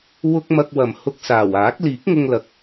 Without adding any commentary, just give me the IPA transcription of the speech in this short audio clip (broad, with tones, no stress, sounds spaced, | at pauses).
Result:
w ʊ˧ k̚ m ɐ˧ k̚ w ɐ˨ m h ʊ˧ k̚ s aː˨˩ w aː˨˥ k̚ l iː˨˥ k̚ ŋ ʊ˧ ŋ l ɐ˨˥ k̚